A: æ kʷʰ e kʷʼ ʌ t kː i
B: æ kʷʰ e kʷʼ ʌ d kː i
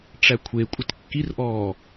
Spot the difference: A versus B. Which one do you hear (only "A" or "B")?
A